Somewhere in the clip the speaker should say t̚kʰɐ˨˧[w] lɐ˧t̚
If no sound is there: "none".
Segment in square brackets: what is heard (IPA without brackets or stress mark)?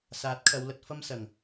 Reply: w